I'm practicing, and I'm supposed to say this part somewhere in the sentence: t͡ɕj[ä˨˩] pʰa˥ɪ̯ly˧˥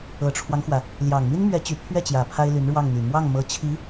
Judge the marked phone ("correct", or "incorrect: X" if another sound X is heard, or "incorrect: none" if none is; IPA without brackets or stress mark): correct